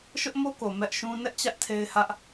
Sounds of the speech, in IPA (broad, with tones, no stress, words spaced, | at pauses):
ʃʊ˦ʔmo˦ ko˨mɛ˦ʔʃũ˦ nɛ˦ʔt͡ɕä˦ʔ tʰe˦ɪ̯hä˦ʔ